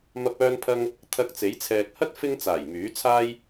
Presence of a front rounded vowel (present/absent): present